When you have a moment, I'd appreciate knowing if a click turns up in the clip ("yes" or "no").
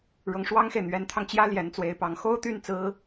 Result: no